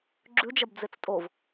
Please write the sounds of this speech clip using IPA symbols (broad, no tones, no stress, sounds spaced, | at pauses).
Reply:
ɡ͡ǁ ʉ d͡ʒ ɐ b d͡z e t͡s tʼ o v